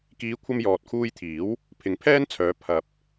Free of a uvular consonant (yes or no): yes